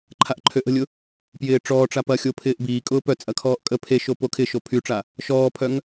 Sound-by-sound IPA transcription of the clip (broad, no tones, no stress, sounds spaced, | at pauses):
ǃʰ a ʔ ǃʰ ø ʔ ə̤ lʲ ʊ | p j ɪː ʈ͡ʂ ɔː ʈ͡ʂ a p ɐ xʲ o pʰ ɪː ʔ b iː kʼ ʊː p œ t͡sʼ ɐ kʰ ɔː ʔ kʼ ə pʰ e ʃ o p o kʰ ɪ ʃ o pʰ y ʈ͡ʂ a | ʃ ɔː pʰ œ ŋ